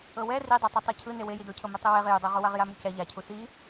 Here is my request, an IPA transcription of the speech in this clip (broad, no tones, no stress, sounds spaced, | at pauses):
ɤ w ɛ r i dˤ a tˤ ɯ tˤ ɤ cʰ ɯ n e w e j i d o cʰ ɤ m e tˤ ɯ w e ʁ j u dˤ ɤ ʁ u w a ʁ j a m u c ɛ ʎ a cʰ u s i